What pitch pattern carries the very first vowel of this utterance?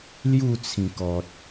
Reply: falling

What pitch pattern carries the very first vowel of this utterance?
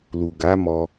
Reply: low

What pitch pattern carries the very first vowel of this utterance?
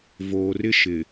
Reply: low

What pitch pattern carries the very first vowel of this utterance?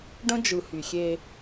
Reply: high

